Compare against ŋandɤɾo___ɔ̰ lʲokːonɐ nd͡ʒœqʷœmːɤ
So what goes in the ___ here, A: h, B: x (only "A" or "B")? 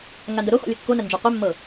B